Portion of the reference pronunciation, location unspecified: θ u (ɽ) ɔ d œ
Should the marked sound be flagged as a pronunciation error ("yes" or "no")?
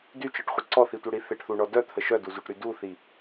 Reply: yes